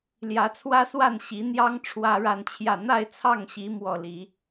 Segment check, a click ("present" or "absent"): absent